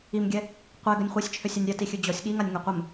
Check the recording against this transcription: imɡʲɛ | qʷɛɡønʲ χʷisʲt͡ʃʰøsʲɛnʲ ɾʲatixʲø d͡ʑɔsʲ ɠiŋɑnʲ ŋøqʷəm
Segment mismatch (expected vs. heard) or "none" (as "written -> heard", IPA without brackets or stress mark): ɑ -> a